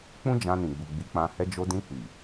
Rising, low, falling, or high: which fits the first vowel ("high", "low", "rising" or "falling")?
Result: high